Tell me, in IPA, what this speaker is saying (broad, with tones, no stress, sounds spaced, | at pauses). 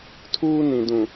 tʰ uː˦ n ĩ˨ d ũ˨